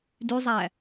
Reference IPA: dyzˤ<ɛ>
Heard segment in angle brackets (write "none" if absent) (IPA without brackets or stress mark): æ